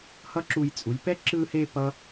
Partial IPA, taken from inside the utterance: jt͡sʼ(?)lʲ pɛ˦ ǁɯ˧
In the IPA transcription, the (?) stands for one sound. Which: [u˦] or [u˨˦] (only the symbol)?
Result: u˨˦